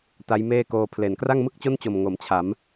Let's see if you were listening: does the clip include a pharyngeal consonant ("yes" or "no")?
no